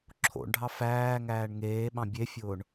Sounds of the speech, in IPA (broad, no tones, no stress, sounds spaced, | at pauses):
ǁʰ o̰ ɳ ɖʱ ɑ f æː ŋ æː ɳ ŋ eː ɓ ɑ̃ bʲ e fʲ ʊː ɳ